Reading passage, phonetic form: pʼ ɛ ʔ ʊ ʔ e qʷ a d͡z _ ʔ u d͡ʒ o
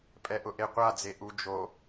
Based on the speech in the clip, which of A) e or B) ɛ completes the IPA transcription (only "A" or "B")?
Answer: A